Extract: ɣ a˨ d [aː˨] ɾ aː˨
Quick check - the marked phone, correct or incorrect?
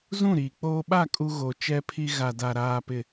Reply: incorrect